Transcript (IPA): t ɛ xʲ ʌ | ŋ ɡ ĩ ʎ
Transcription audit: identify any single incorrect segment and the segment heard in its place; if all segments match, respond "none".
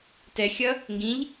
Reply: none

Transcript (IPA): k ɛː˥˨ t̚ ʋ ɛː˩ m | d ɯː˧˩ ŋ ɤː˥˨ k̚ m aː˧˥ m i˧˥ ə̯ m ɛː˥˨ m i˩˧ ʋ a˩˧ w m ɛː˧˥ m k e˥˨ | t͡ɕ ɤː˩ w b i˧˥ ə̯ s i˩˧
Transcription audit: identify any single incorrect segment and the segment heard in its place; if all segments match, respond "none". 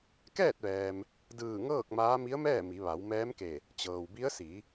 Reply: e˥˨ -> e˧˩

